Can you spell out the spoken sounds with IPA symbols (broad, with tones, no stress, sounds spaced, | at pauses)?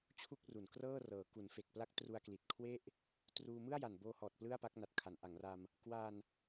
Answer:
t͡ɕʰ u˥˩ k̚ r u˨˩ n k r ɤː˥˩ r ɤː˩˦ k u˩˦ n f e˨˩ k̚ p l a˦˥ k̚ t r u˧ a̯ k l i˨˩ t̚ kʰ w e˥˩ ʔ | t r uː˧ m ɯ˥˩ a̯ j a˨˩ n b oː˧ h ɔː˨˩ t̚ p l ɯ˥˩ a̯ p a˦˥ k̚ n a˨˩ t̚ kʰ a˩˦ n ʔ a˩˦ ŋ r a˧ m | k w a˧ n